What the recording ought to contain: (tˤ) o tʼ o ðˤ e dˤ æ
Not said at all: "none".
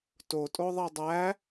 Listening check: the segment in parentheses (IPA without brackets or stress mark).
t